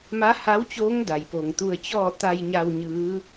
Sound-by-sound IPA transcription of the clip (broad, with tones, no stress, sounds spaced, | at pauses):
m a˧˥ h a˧˥ w t͡ɕ oː˧˥ ŋ d a˩ j p o˩ ŋ t̪ u˧ ə̯ t͡ɕ ɔː˥˨ t̪ a˧ j ɲ a˧ w ɲ ɯː˧˥